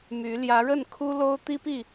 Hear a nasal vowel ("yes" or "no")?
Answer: no